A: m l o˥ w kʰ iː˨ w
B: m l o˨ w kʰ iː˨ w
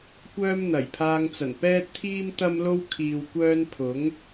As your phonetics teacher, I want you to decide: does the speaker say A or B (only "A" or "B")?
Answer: A